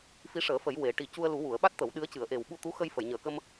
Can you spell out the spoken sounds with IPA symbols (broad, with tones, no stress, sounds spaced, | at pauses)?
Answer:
f i˧˥ ʂ əː˨˩˦ f ə˨˩˦ j w e˨˩˦ ʈ i˨˩ c u˧ ə̯ l u˨˩˦ w u˨˩˨ ə̯ ɓ a˦˥ t̚ t̪ ə˨˩˦ w ɗ ɨ˧˥ ə̯ c ɨ˨˩˦ ə̯ ʔ e˨˩ w ɓ u˧ t̪ u˧˥ x ə˧ j f ə˨˩˨ j ɲ əː˨˩ k ə˧ m